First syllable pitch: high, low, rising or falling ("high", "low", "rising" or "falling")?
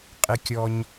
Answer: rising